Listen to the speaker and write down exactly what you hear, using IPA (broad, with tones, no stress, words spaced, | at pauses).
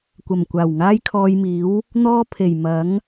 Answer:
kʷɐ˨˩mkʷaː˨˩w ŋaː˥jkʰɔː˧jmiː˨˥w | n̪ɔː˥pʰe˨˩j mɐ˨˥ŋ